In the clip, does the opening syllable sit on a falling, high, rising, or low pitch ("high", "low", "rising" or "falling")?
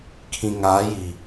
low